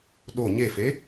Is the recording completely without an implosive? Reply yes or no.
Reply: no